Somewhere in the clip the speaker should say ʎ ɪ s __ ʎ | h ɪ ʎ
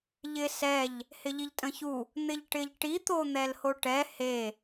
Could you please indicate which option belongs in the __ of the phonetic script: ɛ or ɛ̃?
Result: ɛ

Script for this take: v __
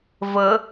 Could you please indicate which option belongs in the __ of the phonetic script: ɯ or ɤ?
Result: ɤ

